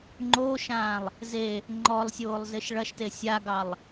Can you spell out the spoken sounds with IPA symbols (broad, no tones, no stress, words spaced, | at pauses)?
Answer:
ŋ͡ǃoʃãːlˠ | ze | ŋ͡ǃɔlˠsʲoːlˠzɪʃ ɭɐʃte sʲaɡɑlˠ